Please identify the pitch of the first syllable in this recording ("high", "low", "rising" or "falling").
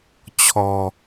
low